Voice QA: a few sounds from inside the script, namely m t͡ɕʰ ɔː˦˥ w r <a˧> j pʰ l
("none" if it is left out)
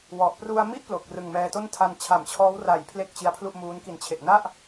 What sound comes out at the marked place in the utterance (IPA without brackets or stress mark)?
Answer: a˩˦